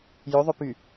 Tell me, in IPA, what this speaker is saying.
j ɵ ðˤ ɵ p y

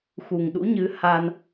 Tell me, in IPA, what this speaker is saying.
x u˨˩ ŋ ɗ ṵ˧˥ ɲ ɨ˨˦ h a˧ n

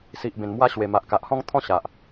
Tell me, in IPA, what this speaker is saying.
s i˨ ʔ b ẽ˨˩ n m w a˧ ɕ w e˨˩ m a˨ ʔ k a˨ ʔ h ɔ̃˦ ŋ t̪ʰ ɔ̃˦ ɕ a˨ ʔ

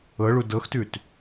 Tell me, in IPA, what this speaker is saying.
ɤ ɭ u d ɤ x t ʉ t

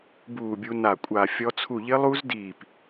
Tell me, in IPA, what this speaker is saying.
b uː˧˩ bʲ u˧ n a˧˩ kʷʼ a˧˩ fʲ ɔ˧ t͡sʰ u˧˩ ʎ ɪ˦˥ lˠ u˦˥ z d iː˧˩ p

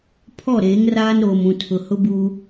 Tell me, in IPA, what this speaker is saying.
pʰ ɔ˦˨ ɾ eː˨˦ ŋ r aː˦ n ɾ oː˨ m ũ˨ tʰ ʊ˨ h ʊ˦ b uː˦

